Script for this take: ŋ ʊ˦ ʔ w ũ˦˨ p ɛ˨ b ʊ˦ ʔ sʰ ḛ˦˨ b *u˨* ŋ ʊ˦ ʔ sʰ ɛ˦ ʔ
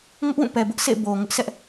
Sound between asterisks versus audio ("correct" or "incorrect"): incorrect